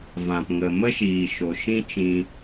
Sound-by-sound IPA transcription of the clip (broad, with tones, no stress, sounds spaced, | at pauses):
v ã˨ p ŋ ə˨ m ə˦ ʃ iː˨ ʃ o˨ ʃ ĩ˦ t͡ʃ ĩ˧